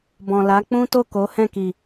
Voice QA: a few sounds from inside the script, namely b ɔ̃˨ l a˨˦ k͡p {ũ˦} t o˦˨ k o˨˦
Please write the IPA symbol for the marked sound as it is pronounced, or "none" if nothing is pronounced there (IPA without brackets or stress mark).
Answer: ũ˦